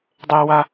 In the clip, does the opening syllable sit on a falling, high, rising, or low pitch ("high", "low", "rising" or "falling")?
high